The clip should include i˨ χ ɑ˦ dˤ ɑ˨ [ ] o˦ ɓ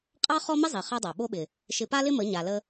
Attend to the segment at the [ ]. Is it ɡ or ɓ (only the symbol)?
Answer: ɓ